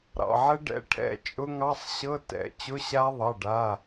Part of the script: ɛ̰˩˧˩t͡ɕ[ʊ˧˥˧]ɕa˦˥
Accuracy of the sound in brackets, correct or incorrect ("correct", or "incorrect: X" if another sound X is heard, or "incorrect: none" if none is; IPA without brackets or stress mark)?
correct